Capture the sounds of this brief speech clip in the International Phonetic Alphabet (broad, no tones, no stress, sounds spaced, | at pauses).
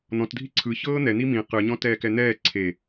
n̪ ɔ̃ t dʱ i ǀʰ ɯ ç ɤː n̪ ɛ n̪ i m ĩ q ɯ ɲ ɔ̃ t ɛː k ɛ n̪ ɛː ǀʰ e